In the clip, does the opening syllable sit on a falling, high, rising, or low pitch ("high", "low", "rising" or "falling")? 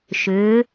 rising